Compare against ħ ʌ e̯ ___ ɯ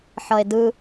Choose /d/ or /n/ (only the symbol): d